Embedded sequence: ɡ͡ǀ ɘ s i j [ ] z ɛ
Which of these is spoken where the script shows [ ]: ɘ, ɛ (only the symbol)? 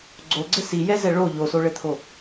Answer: ɛ